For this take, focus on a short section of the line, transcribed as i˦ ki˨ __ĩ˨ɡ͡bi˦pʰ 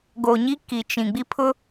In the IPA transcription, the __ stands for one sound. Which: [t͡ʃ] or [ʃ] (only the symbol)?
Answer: t͡ʃ